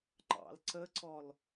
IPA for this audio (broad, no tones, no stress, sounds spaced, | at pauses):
ŋ͡ǃ ɑ̰ l ǀ ə ǀ ɔ l